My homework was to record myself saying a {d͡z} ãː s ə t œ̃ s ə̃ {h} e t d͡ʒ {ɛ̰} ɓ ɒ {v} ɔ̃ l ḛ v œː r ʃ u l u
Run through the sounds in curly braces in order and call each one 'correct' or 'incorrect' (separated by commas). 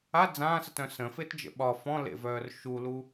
correct, incorrect, incorrect, incorrect